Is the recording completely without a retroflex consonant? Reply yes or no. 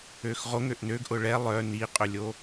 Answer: no